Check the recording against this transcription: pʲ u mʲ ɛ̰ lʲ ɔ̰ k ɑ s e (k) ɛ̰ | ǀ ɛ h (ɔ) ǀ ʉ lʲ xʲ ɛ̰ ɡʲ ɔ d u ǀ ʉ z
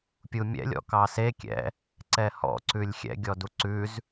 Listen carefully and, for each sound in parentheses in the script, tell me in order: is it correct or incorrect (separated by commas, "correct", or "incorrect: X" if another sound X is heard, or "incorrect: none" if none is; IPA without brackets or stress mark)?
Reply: incorrect: kʲ, incorrect: ɔ̰